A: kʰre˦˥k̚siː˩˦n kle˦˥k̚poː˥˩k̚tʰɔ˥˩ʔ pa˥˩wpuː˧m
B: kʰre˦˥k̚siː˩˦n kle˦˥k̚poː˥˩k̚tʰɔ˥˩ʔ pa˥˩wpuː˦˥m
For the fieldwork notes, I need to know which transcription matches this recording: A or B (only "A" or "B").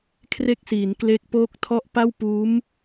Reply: B